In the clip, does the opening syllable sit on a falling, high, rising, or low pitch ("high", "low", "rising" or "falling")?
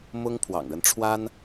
high